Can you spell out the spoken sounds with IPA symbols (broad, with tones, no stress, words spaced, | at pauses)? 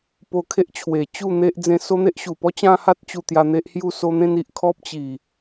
po˧kʰe˦ʔt͡ɕʰwe˨˩ t͡ɕu˥˧n̪e˦ʔ d͡zẽ˧so˦n̪e˦ʔ ɕu˨˩pɔ˦t͡ɕã˦ha˦t̚ t͡ɕu˧t̪ja˧ n̪e˦ʔhju˥˧so˦ n̪ẽ˦ni˨ʔ kʰɔ˦p̚t͡ɕi˨˩